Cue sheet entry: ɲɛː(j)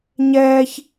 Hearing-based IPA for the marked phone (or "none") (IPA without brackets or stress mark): ç